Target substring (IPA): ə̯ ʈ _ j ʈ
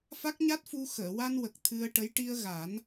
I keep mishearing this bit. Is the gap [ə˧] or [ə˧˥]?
ə˧˥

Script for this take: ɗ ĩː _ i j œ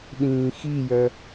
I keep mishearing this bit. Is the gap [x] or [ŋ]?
x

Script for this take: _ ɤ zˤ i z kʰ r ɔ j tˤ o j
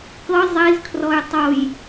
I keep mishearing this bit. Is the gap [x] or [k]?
k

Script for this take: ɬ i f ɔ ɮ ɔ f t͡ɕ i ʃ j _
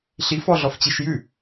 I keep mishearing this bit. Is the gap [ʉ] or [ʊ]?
ʉ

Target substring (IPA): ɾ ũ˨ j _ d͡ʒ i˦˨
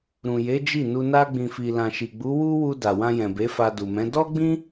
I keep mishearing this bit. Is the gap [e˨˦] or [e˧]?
e˨˦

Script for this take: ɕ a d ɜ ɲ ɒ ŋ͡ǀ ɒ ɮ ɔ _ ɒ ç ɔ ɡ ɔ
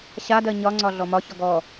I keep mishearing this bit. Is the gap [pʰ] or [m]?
m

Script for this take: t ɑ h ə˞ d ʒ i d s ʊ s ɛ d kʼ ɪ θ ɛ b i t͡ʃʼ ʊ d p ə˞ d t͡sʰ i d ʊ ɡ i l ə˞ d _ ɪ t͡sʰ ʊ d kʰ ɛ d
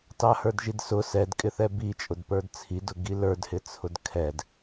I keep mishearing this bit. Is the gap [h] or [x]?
h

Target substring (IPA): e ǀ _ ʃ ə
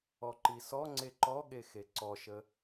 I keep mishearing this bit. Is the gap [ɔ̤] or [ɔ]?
ɔ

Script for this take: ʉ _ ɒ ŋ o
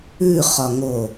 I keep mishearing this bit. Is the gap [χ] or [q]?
χ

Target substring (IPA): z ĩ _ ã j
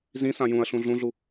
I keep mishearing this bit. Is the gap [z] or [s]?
s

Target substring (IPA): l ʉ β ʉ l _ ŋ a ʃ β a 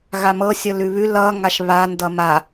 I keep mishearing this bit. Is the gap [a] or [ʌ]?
ʌ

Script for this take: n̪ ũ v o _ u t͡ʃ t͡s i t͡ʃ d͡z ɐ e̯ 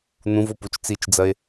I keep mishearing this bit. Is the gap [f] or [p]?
p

